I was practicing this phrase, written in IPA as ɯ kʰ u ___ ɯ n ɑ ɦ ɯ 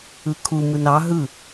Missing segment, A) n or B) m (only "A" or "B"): B